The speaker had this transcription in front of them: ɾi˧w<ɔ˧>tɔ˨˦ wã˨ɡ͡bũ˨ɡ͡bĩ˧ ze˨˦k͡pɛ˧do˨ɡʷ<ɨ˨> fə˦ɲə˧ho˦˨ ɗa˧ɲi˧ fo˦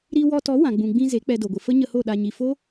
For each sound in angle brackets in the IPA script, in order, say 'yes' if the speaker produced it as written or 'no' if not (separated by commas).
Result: yes, no